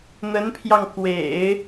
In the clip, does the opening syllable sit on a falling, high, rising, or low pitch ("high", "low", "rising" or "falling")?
rising